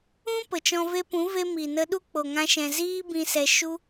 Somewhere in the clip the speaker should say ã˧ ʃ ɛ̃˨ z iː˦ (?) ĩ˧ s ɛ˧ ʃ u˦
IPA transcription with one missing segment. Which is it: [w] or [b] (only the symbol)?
b